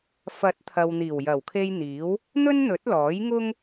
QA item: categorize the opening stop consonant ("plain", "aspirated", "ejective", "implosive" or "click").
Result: plain